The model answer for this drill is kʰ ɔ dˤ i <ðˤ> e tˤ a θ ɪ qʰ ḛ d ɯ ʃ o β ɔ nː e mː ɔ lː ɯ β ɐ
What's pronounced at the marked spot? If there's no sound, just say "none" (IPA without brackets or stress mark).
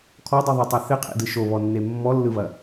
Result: ðˤ